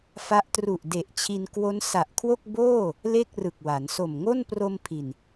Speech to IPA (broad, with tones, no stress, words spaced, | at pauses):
fa˦˥ʔ tru˨˩ʔde˨˩ʔ t͡ɕʰi˧n kwo˦˥n sa˨˩ʔkʰwo˥˩k̚ boː˥˩ | le˥˩k̚rɯ˨˩k̚wa˩˦n so˨˩mŋo˥˩npro˧m pʰi˨˩n